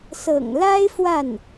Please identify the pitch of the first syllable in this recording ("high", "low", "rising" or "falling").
low